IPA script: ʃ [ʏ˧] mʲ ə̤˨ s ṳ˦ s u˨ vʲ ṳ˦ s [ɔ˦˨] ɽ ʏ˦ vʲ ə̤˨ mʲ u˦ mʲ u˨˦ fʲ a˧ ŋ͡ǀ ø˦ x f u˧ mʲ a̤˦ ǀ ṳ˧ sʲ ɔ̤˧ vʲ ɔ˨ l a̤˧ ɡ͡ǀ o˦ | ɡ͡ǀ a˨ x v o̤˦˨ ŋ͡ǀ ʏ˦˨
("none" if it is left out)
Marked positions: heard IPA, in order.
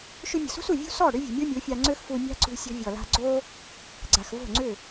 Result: ʏ˧, ɔ˦˨

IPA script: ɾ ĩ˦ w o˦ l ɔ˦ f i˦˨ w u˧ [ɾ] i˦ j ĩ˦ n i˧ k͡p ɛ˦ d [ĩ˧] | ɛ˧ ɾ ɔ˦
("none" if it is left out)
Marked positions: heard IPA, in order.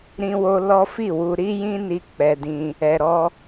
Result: ɾ, ĩ˦

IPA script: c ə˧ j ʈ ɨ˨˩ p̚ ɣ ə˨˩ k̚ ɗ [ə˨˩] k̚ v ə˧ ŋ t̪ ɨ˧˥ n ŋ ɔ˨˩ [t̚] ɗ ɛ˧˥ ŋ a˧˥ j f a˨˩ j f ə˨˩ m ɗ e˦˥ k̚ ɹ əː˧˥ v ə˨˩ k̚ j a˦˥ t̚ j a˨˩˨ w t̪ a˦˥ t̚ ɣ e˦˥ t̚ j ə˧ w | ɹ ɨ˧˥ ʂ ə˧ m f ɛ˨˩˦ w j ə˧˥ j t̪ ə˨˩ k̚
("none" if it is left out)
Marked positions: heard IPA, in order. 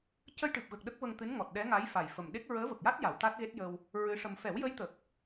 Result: ə˦˥, t̚

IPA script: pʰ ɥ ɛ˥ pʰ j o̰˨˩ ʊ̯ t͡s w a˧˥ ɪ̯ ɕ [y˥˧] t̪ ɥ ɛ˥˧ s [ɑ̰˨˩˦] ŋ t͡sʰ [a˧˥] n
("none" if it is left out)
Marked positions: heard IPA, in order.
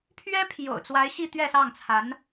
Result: i˥˧, ɑ˥˩, a˧˥

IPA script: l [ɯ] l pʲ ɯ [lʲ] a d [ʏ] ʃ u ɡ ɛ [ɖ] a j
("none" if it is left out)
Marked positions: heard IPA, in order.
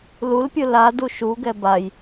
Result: u, l, u, b

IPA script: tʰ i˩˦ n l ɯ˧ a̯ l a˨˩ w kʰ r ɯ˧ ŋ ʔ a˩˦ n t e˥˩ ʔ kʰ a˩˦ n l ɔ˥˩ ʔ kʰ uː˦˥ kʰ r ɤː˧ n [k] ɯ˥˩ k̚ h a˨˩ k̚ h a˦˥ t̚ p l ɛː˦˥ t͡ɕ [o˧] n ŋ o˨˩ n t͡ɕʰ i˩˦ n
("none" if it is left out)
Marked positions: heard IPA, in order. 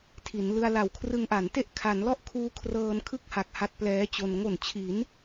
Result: kʰ, o˧

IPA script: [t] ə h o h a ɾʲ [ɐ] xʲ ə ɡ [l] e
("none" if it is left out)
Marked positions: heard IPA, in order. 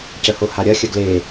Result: c, ɐ, l

